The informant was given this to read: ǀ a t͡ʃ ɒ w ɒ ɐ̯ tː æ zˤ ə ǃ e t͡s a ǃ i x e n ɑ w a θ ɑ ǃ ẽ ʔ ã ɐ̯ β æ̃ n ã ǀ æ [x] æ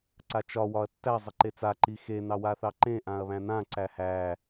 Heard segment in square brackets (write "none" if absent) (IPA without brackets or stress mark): h